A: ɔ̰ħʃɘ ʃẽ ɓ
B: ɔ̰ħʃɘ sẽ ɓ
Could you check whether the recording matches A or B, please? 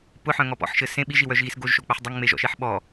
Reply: B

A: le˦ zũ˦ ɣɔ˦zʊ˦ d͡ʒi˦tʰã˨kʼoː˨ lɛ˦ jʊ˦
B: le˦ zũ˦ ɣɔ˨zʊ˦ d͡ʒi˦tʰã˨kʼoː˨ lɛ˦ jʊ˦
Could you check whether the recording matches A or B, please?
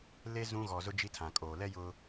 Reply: B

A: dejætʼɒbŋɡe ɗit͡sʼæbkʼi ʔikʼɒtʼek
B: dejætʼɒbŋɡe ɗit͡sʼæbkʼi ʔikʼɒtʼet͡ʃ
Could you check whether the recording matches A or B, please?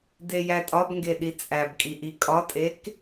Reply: A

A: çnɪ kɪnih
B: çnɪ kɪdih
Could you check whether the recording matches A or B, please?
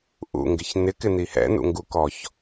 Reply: A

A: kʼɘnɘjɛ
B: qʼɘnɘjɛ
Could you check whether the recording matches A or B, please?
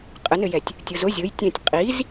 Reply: B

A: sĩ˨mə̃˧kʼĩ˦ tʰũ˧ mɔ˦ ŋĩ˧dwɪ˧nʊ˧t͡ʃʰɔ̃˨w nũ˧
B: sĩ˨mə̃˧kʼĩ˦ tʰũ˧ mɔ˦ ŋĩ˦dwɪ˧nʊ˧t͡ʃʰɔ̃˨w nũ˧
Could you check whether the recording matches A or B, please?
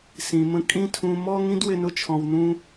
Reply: B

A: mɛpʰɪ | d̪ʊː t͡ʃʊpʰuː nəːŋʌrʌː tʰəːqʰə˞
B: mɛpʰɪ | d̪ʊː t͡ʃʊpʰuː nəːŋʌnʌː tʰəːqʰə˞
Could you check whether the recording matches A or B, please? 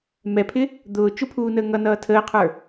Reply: B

